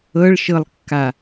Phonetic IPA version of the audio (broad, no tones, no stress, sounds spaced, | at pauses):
ɤ ɭ ʃ ɤ lˠ kː a